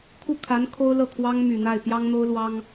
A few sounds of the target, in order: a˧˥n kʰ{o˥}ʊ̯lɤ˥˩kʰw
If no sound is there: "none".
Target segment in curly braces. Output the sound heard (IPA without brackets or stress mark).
o˥